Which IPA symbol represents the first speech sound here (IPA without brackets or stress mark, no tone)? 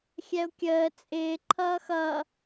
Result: xʲ